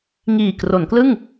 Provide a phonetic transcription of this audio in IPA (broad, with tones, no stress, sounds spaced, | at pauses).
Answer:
ŋ iː˨˩ k r o˩˦ n k l ɯ˥˩ ŋ